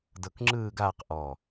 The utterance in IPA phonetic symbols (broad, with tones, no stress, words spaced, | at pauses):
dɤ˧kŋ͡ǁɯː˥˧ɡaː˥˧qʔɔ˧˩